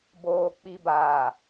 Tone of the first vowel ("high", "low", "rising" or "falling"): low